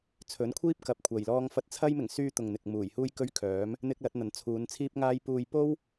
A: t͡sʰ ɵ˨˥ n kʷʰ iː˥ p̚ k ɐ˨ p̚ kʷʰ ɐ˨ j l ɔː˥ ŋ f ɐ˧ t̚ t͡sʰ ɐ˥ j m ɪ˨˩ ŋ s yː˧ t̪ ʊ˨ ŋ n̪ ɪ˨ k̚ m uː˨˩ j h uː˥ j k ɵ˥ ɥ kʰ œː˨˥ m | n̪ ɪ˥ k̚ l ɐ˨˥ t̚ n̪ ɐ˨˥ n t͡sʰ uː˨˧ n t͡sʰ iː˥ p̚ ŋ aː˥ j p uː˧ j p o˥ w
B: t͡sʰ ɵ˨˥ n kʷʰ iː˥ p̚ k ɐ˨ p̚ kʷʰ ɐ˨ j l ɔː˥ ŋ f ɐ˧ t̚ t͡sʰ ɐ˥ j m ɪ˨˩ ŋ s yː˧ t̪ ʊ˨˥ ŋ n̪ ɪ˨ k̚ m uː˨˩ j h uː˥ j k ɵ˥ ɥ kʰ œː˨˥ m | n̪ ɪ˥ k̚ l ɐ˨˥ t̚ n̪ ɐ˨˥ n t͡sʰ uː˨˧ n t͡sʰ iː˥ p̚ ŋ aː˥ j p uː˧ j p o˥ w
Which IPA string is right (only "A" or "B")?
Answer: A